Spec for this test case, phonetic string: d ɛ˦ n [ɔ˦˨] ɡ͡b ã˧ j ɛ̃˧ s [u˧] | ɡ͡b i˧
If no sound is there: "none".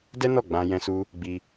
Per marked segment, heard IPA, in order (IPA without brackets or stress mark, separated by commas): ɔ˦˨, u˧